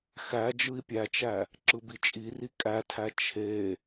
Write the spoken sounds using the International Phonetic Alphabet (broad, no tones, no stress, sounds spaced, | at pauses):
x æ d͡ʒ ɯ i̯ pʲ æ t͡ʃ æ | ǁ ɯ b i t͡ʃʼ i r i kʼ æ tʰ æ t͡ʃʰ e